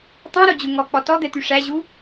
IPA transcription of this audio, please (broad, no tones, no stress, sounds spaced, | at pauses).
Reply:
tˤ õ ɾ o d͡ʑ u ŋ ɔ k͡p ɔ t ɔ d̪ ɛ t̪ y ʂ æ ʑ u